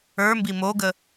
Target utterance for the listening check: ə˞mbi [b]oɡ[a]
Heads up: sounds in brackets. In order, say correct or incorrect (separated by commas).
incorrect, incorrect